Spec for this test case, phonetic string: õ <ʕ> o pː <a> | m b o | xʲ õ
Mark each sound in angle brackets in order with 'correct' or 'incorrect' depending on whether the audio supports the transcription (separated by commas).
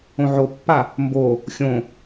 correct, correct